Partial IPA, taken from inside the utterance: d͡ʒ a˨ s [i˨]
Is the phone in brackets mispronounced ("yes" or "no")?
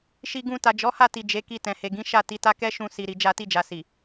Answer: no